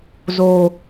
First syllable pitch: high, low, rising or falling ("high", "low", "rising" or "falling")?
low